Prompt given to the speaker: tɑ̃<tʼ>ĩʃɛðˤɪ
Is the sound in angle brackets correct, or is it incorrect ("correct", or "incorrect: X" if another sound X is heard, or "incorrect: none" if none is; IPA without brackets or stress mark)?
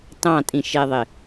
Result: correct